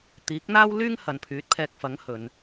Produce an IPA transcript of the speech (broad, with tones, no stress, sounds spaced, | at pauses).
t̪ iː˨˥ k̚ n̪ aː˥ w l yː˥ ŋ h ɐ˨ n pʰ yː˨˥ t̚ pʰ ɛː˧ k̚ f ɐ˨˥ ŋ h ɵ˨˧ n